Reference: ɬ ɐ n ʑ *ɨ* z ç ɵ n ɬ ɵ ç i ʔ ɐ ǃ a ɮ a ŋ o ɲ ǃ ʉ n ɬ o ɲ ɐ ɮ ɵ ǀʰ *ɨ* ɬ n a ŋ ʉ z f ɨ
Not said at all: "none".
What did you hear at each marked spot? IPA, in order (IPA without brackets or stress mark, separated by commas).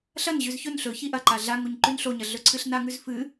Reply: ʉ, ɨ